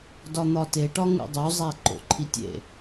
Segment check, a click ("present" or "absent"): present